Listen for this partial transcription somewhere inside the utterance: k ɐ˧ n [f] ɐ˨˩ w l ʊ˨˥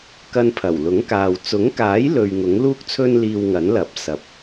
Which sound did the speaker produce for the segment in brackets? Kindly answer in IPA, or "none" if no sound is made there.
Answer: pʰ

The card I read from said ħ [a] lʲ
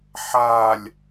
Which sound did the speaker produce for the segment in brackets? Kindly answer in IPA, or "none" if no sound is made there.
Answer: a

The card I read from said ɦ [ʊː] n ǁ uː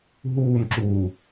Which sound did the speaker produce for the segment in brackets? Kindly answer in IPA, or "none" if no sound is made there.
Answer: uː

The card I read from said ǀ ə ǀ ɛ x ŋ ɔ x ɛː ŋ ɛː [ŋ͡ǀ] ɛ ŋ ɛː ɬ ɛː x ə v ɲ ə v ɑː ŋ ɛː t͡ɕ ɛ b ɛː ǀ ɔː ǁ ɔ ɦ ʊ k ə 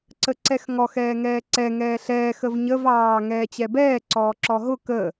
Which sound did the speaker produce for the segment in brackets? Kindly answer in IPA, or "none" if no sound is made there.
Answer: ǀ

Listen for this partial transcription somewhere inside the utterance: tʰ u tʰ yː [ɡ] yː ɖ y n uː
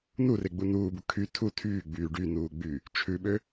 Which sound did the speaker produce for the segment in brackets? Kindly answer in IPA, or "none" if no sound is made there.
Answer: ɡ͡b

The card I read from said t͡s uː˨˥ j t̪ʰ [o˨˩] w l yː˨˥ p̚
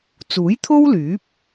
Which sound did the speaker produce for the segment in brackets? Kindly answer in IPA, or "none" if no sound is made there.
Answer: o˥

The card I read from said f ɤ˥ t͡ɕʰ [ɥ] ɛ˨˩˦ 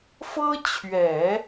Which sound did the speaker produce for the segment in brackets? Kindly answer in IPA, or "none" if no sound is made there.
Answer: ɥ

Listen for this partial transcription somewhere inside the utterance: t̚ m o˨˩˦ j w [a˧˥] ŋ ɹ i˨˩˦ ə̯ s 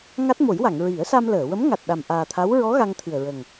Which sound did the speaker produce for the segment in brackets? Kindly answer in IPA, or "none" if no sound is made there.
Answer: a˨˩˨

